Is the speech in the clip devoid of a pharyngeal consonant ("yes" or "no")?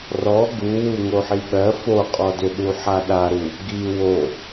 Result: no